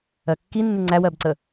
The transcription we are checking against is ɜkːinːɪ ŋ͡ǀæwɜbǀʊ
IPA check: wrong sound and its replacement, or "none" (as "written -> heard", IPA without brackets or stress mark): ʊ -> ə